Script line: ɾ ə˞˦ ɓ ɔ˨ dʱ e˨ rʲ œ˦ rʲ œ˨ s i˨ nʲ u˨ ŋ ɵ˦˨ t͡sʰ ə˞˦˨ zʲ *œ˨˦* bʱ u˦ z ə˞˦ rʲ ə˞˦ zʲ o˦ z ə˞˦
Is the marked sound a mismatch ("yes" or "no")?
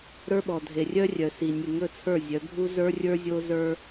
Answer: no